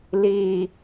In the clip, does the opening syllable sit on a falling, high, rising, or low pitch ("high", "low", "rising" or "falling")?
low